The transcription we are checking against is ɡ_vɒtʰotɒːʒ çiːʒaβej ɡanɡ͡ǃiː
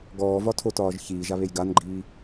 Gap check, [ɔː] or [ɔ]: ɔː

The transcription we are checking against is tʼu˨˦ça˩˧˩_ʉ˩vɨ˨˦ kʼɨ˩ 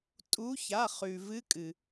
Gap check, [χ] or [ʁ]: χ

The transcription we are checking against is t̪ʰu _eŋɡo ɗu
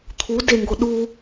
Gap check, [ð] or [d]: d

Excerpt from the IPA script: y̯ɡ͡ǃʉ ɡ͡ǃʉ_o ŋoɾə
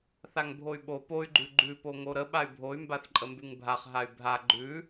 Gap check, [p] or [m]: p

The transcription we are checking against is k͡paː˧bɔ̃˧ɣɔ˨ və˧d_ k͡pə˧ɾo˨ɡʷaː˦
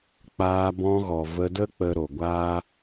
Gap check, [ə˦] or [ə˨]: ə˦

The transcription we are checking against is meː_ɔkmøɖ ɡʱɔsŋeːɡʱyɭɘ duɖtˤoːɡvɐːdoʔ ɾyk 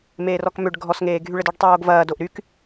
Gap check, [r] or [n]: r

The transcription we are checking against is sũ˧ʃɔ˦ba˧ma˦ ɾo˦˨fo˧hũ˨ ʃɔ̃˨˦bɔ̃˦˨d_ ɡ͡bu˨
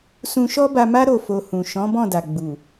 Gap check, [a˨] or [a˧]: a˨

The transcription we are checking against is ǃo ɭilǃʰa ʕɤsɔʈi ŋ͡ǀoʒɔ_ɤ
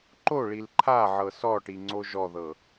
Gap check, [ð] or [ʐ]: ð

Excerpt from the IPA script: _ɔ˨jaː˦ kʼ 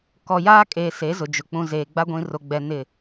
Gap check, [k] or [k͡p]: k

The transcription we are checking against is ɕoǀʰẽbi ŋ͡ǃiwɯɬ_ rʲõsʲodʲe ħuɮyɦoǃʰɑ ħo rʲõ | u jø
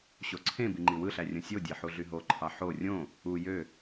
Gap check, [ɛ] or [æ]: æ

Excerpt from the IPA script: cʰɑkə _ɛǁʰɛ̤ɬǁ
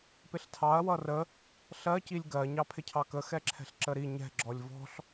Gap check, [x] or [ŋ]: x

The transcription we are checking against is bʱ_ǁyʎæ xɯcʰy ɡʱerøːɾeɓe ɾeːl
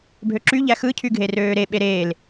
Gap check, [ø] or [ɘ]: ø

